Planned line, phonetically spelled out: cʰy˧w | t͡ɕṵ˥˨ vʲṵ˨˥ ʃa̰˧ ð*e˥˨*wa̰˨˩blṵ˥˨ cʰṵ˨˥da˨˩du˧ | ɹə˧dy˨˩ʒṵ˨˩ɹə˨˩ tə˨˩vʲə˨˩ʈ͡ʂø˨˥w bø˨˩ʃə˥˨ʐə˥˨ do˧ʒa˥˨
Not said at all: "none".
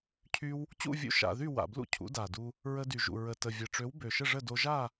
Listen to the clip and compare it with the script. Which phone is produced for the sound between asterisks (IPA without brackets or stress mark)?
y˥˨